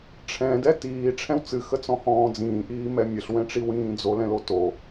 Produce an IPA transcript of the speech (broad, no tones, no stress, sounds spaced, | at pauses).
ʈ͡ʂʰ ɛ̃ d ɛ t iː ʈ͡ʂʰ ɛ̃ w t͡s ɨ x ə t͡s ɔ̃ h ɔ̃ː d͡z ĩː ʔ iː m ɛ mʲ ə ɬ w ɛ̃ ʈ͡ʂ i w ĩː d͡z o l ɛ̃ l o t o